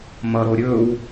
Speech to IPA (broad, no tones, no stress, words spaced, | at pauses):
mʌɾo ɾʲɵw